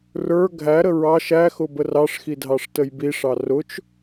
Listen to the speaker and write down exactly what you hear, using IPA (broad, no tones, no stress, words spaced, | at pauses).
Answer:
rə˞ ɡʱæɾə ɹɑ ʃæxʊbər ɑʂxidʱɑʂ təjbiʂɑ rʊt͡ʃ